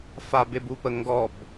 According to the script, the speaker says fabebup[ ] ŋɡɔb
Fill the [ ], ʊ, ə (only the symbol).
ə